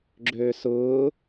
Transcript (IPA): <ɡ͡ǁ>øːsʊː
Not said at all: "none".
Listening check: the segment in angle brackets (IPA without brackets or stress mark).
ɡ͡ǁ